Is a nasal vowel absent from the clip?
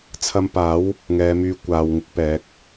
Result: yes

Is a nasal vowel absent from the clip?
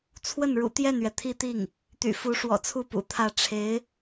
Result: yes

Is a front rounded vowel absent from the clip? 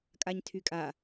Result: no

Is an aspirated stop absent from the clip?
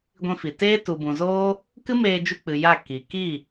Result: yes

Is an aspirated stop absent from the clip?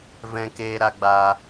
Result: yes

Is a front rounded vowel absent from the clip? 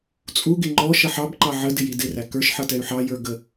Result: no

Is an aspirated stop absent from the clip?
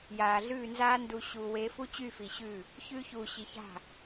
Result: yes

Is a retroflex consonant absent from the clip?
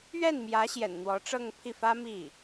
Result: no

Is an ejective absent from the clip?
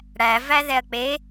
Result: yes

